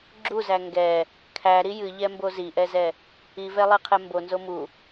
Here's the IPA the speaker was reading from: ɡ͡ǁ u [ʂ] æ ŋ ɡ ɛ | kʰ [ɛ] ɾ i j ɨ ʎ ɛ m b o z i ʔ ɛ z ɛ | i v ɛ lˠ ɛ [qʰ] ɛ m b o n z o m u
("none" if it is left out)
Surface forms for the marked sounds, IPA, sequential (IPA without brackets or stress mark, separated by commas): z, æ, qʰ